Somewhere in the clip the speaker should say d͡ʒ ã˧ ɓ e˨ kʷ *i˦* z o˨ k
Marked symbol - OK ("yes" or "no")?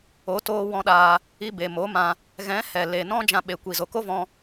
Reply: no